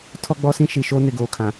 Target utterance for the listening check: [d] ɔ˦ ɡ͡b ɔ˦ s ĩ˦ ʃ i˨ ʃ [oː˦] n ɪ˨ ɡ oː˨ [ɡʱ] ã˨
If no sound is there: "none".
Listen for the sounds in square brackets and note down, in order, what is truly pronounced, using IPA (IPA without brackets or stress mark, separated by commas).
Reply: tʰ, oː˦, kʰ